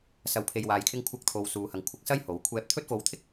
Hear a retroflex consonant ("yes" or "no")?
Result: no